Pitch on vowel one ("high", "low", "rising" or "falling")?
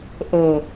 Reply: low